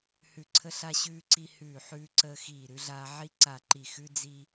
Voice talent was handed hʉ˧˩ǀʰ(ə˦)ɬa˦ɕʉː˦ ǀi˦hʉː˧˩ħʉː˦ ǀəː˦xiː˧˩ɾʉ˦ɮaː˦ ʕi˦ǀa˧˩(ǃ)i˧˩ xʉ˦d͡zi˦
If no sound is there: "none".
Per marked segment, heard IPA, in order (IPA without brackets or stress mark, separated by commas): ə˦, ǃ